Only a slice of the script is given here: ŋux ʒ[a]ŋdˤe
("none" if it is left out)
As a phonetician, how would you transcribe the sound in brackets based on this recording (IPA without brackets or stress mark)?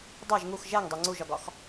æ